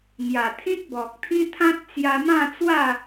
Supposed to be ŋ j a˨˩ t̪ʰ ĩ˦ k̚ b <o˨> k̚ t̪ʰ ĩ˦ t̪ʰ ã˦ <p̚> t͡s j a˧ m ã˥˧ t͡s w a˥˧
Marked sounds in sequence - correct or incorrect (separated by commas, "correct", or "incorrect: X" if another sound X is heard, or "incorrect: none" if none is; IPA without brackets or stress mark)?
incorrect: ɔ˨, incorrect: t̚